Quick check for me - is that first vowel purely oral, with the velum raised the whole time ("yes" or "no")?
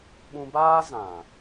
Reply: no